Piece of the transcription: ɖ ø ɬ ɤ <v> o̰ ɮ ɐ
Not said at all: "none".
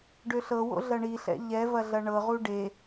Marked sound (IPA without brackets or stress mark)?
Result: w